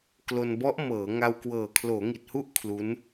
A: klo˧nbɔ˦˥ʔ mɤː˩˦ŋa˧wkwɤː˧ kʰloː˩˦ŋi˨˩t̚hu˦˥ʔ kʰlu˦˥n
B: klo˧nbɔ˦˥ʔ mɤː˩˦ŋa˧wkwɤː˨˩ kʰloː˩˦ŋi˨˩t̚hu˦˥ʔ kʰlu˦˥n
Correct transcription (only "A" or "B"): B